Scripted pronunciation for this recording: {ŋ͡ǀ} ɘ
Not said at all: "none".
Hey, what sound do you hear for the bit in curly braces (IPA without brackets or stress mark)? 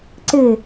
ǀ